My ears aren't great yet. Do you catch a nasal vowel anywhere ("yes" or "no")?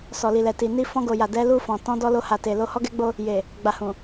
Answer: yes